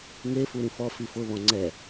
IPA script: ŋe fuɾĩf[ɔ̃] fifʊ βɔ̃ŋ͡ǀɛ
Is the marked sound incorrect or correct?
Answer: incorrect